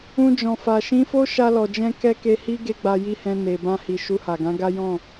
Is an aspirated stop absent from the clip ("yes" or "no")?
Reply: yes